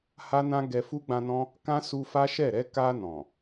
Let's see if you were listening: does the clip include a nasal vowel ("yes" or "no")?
yes